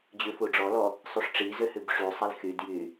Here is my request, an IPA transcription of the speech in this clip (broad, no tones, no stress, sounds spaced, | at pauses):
d͡ʑ ʉ f u ɖ͡ʐ ɔ l ɔ | sˤ y ʂ ʈ͡ʂ i z ø h ʉ b ʂ y sˤ e l x y d j y